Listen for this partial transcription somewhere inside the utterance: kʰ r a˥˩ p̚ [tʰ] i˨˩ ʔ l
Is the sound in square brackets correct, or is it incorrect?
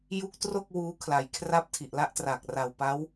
correct